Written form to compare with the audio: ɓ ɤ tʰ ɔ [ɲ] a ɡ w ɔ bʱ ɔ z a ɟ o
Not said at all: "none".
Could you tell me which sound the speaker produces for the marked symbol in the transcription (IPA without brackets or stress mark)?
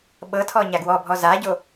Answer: ɲ